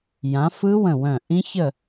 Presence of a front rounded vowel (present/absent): present